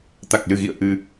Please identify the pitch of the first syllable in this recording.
low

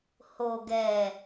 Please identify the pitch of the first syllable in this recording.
low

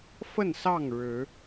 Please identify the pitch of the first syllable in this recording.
falling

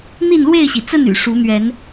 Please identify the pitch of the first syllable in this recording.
falling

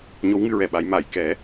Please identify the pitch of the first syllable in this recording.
rising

